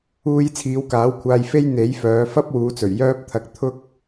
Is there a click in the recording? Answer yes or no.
no